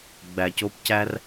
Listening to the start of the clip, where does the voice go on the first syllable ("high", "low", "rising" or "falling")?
low